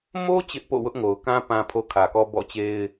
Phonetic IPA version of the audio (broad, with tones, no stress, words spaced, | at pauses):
mo˦ t͡ɕɪ˦ʔpo̰˦˨wʊ˦ʔŋo˨ʊ̯ kã˦ pã˨pʰo˨ kʰä˨kɔ˦bɔ̰˦˨t͡ɕe˦ɪ̯